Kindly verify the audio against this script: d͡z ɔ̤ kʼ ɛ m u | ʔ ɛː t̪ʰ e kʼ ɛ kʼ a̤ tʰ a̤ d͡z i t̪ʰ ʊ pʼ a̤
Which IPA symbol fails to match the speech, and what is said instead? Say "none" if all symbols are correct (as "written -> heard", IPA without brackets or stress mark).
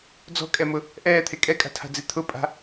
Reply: u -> ʊ